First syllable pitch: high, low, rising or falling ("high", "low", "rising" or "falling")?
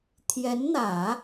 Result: rising